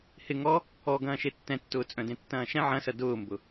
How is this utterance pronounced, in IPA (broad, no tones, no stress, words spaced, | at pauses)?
hɪ ŋɔ | ɔ ɡɐ̃ːʃetːɛ̃tːʊː t͡sʼœ̃dẽtːɐ̃ːʃɛ̃ ʕɐ̃sɐ dʊːmbʊ